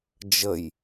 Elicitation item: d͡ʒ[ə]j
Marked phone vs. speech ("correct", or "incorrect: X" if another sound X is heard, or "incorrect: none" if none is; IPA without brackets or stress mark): correct